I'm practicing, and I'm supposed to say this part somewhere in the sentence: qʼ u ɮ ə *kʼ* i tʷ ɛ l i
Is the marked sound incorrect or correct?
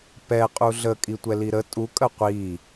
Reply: correct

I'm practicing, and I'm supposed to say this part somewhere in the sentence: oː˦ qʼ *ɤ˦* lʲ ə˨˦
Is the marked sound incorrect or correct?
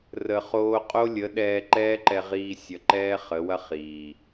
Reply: incorrect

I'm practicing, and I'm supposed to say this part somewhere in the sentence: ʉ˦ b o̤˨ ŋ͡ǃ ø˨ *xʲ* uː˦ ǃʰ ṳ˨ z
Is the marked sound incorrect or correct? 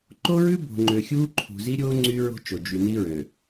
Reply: correct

